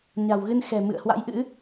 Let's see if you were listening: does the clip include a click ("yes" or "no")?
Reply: no